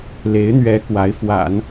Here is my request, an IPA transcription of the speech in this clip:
le˧˥ɪ̯n̪ɥɛ˧˥ kwa˧˥ɪ̯ fwa̰˨˩˦n

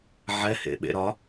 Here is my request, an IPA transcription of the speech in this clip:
ʕɛhḛ ɓḛɾɒ

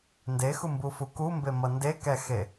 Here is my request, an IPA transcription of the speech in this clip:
ndexumbufu kumbemʌ ndekɛxe

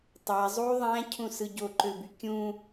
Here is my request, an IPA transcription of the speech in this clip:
tˤæ zˤu ðˤæ̃cʰũsɯ ɟoǃøby kʲũ

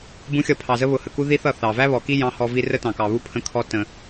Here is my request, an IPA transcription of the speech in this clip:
bũ˨˦xʲʌ˨ pʰɑ˨zə˦ βʊ˨hə˨ku˦ ði˦θʌ˦˨ θɑ˨ væ˦βɔ˨ki˦ jɑ̃˦hɔ˦vi˦ rə˦tɑ̃˨kɑ˨βu˦ pʰə̃˦kʰɔ˦ tə̃˦

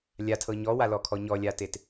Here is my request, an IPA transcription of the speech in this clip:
lʲatʰɤ ɲɔwalɔkʰɔ ɲɔlʲatet

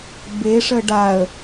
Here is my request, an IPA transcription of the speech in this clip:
beʂə ɖaə̯

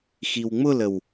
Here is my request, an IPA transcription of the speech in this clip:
xiwŋ͡mʊləw

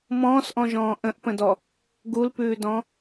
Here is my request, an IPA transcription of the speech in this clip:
mɔ̃ːsʔɔ̃ʒɔ̃ː ʔə̃ʔpə̃dɔ | ɡulpʉːdɔ̃

